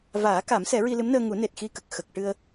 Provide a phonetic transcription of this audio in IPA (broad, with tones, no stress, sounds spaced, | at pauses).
v aː˨˩˦ k a˨˩˦ m s ɛ˨˩˦ ɹ i˧ l ɨ˧˥ m n əː˧ ŋ u˨˩˦ n e˨˩ t̚ x i˧ k ə˨˩ k̚ x ə˨˩ k̚ ʈ ɨ˧ ə̯